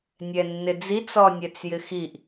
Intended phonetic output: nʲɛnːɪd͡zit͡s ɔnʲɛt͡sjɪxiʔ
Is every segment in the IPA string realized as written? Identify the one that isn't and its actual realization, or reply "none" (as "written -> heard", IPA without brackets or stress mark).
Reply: none